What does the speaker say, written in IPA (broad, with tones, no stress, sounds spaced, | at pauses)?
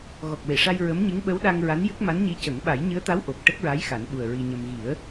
ɣ ɔ˨˩ k̚ w e˨˩˨ ʂ a˧ j ɹ ə˧˥ m ɲ ɨ˧˥ ŋ ɓ ə˧˥ w ɗ a˧ ŋ ɹ a˧˥ n j ɨ˦˥ k̚ m a˧˥ n ɲ i˧˥ c ə˨˩˦ ŋ ɓ a˨˩˦ j ɲ ɨ˧˥ ə̯ t̪ a˧˥ w ʔ o˨˩ k̚ ʈ ə˦˥ k̚ ɹ a˧˥ j x a˨˩˦ n ɓ u˨˩ ə̯ ɹ i˧ ɲ ə˧ m ɣ i˨˩˦ ə̯